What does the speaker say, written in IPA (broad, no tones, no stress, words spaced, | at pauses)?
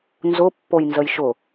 nzʊ pːojnzəjʃʊ